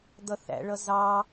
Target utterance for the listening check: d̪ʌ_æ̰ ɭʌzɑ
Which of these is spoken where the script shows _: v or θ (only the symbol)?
θ